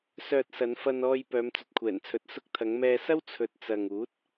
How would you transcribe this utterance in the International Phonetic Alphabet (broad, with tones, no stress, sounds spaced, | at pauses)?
s œː˨ t̚ s ɐ˨˧ n f ɐ˧ n ɔː˧ j p œː˨˧ m t͡s ɵ˨ t̚ kʷʰ ɛː˨˩ n t͡sʰ ɵ˨ t̚ s ʊ˧ k̚ t̪ʰ ɐ˨˧ ŋ m ɛː˧ s ɐ˥ w t͡sʰ ɵ˨ t̚ t͡s ɐ˨ ŋ uː˨˥ t̚